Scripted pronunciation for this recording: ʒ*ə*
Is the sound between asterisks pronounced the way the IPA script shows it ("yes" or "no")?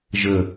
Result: yes